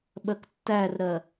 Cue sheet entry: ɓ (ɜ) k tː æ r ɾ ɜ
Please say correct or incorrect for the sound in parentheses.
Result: correct